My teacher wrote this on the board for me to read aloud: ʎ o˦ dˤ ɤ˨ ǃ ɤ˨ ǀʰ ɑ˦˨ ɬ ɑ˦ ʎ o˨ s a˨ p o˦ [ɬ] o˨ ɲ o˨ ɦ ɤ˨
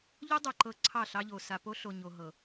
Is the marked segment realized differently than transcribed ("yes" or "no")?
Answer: no